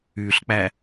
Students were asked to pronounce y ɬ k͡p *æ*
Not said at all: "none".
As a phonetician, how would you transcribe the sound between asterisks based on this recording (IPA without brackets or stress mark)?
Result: æ